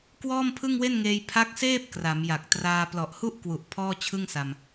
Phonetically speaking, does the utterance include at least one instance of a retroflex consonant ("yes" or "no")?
no